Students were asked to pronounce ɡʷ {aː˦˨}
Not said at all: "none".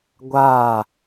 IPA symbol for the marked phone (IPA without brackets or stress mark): aː˦˨